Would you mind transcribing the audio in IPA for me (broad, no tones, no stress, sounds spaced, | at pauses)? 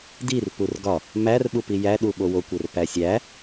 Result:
d i r p u r ɡ ɒ | m æ r ɓ u p i j æ ɗ u ɓ o w o kʷ e r p æ sʲ æ